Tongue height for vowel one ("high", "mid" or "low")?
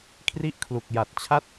high